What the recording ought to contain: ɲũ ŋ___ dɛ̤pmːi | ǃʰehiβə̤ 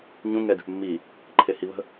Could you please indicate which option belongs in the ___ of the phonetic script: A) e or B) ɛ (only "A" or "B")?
B